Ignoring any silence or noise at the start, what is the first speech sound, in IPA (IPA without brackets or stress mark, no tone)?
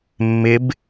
mː